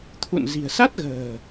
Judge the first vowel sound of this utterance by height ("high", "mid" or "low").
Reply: high